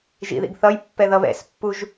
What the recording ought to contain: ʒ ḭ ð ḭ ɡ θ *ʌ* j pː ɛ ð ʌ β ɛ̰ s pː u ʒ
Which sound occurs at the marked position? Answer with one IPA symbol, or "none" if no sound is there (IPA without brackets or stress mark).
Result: ʌ